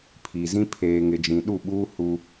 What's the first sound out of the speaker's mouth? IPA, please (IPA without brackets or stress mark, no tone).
pʰ